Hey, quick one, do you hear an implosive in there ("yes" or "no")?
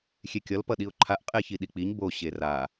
yes